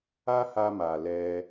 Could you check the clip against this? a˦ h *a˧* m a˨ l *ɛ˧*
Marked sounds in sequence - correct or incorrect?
correct, correct

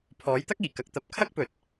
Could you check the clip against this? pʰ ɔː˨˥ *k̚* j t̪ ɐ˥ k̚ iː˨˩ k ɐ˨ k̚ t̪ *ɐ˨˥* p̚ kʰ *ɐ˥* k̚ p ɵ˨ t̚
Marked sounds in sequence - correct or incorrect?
incorrect: none, correct, correct

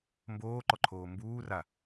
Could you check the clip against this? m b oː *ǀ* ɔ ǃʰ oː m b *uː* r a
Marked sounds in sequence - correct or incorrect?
incorrect: ǃ, correct

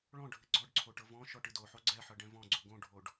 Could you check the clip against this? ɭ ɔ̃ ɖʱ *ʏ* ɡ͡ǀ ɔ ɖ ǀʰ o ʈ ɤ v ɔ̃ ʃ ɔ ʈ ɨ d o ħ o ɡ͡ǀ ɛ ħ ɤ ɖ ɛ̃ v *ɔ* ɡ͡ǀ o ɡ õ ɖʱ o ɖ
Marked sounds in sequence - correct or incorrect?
incorrect: ɨ, incorrect: ɔ̃

